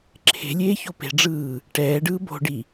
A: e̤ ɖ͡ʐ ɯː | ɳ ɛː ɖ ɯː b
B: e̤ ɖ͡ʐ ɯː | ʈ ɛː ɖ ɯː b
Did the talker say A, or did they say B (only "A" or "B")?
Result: B